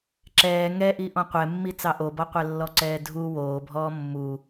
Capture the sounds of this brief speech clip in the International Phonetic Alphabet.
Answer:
ǁ ɛː ŋ ɛ ʔ i ʔ ɔ̃ qʷ ɛ mː i t͡s ɑ ʔ o b ɔ qʷ ɛ lː ɔ ǀ ɛː dʱ u w oː bʱ ɔː mː u

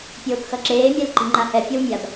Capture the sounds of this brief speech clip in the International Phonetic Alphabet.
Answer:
pʲ oː k x ʌ ǁ eː mʲ ɛ l ǃ i̤ ŋ͡ǃ a h ɛ pʲ ʌ w mʲ a b

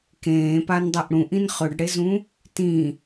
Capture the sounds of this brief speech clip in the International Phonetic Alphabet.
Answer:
k ẽː p a n dˤ ɐ ʔ ɽ ũ ʔ ĩ n χ ɵ ɖ ɽ e z ũ | t ĩ

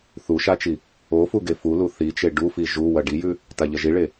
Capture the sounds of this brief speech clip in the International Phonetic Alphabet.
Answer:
θ u ʃ a t͡ʃ i | o f u ɡ e f u l u θ i t͡ʃ e ɖ u f i ʒ u w ɐ ɖ i j ʉ | t a ʎ ɐ ʒ i ɭ e

